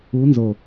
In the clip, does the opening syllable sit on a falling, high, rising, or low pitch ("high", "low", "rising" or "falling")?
rising